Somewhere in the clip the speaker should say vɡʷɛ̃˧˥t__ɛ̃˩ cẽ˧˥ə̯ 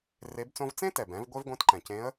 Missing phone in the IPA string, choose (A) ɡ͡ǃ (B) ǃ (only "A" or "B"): B